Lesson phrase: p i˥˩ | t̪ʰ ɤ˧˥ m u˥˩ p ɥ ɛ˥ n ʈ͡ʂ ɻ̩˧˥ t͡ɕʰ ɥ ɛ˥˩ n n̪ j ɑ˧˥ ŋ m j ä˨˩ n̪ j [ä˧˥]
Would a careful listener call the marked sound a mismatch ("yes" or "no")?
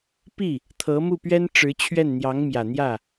yes